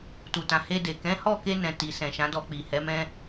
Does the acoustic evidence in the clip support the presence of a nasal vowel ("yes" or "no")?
yes